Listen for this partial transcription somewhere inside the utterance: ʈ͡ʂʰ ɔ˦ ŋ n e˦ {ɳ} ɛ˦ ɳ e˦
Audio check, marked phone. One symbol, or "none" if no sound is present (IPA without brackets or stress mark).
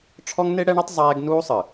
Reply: ɽ